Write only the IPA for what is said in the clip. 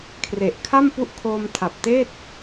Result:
kʰre˨˩ʔkʰa˥˩mpu˦˥ʔ kʰoː˧mtʰa˨˩p̚teː˥˩t̚

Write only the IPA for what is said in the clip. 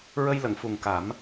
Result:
ɹə˧jlə˨˩˨ŋ fu˨˩ŋka˨˩˦m

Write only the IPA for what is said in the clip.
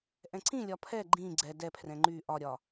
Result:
ʔɛ̃ǀĩlʲɒ pʰɛ ɡ͡ǃĩ ɡ͡ǀɛ dɛpʰrɛ̃ ŋ͡ǃy ʔɒɾʲɒ

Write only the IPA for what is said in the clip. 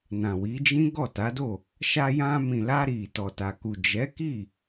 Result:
nã˨wi˨˦d͡ʒĩ˦ ɡɔ˦˨ta˨˦do˦˨ | ʃa˧jã˧mĩ˨la˧ ɾi˨ tɔ˨ta˨ku˨ d͡ʒɛ˨˦ki˦˨

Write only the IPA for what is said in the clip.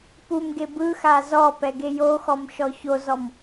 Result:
pumɡe bɯ xazɔpɛ ɡejoxɔm ʃɔçozɔm

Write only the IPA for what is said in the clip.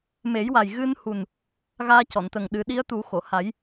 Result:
me˨˩˦jwa˨˩jɣɨ˧nhu˨˩n | ɣaː˧cɔ˨˩˨nt̪ə˨˩ŋɗɨ˨˩˦ ɗi˧˥ə̯t̪u˨˩˦xo˨˩˨ha˨˩˦j

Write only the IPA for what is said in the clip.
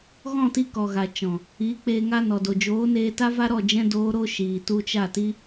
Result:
ɣɔ̃˦˨ti˧ kɔ˨ɣa˨ t͡ʃɔ̃˨ | iː˨˦k͡peː˧ ŋa˧nɔ˨do˨ d͡ʒoː˨˦neː˧ta˦ va˦ ɾɔ˦˨d͡ʒɛ̃˦ doː˦ ɾo˦ʃiː˨ tu˧t͡ʃa˦˨ti˦

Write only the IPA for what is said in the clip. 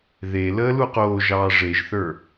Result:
ðe ləːluqoːʒɑː ʐeʒθə˞

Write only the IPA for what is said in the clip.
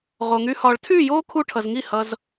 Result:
ʁo˨ŋy˧ hɒː˨ɭtʰyː˦˨joː˦ kʰu˧ ʈʰʌ˨zŋi˦˨hʌ˧z

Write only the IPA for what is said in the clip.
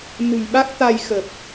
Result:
nɨ̤˨˩jɓa˦˥k̚ t̪a˧jxə˨˩p̚

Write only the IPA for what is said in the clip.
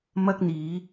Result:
mɐ˥k̚ n̪iː˨˧

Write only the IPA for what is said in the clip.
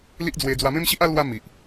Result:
li˦ʔd͡zwe˧ d͡zwa˧mẽ˦mɕi˦ʔa˦ lwa˦ mi˨ʔ

